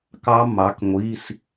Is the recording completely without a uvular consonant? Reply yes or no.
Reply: yes